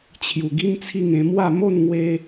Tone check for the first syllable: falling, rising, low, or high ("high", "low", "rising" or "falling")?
low